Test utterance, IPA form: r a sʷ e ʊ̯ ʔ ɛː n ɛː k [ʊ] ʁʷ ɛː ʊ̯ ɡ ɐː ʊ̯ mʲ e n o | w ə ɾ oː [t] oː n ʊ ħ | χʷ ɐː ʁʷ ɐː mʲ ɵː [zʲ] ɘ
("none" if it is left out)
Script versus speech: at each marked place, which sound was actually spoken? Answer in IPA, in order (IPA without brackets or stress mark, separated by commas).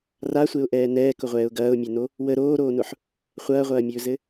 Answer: ʊ, ɾ, z